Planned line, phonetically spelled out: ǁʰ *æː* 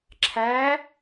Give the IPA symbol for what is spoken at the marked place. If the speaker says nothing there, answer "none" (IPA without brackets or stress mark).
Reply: æː